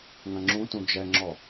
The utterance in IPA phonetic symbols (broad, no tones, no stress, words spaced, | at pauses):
ŋɐ̃ŋ͡ǁũtũ d͡ʒɛŋ͡ǁɔ